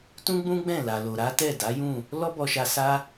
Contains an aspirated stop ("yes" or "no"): no